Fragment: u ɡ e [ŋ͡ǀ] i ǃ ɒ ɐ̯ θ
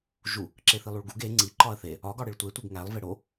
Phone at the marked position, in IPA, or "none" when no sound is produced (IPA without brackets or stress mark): ŋ͡ǀ